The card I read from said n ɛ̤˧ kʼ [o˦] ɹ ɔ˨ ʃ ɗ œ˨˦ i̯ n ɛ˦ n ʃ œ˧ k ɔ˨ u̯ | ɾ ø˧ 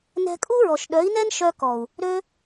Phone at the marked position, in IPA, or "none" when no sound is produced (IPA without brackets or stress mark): u˦